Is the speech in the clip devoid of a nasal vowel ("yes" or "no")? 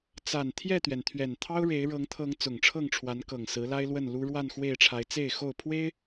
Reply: yes